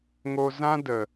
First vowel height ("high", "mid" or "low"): mid